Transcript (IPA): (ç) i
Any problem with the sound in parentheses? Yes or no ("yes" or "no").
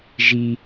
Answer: yes